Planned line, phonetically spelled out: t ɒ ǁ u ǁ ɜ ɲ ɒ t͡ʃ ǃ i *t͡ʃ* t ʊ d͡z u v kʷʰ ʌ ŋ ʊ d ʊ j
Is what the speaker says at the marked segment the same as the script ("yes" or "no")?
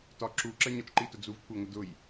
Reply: no